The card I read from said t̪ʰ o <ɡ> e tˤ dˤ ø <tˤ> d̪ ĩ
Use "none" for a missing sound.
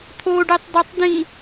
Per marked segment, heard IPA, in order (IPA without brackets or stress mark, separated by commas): ɖ, tˤ